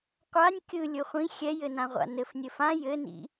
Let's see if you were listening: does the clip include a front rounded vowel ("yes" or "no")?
no